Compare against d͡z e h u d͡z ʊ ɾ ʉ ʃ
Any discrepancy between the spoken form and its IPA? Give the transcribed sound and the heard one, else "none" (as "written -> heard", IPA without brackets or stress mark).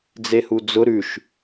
none